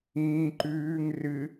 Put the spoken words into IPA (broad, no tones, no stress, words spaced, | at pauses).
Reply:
ĩː ǃʉːŋ rɨ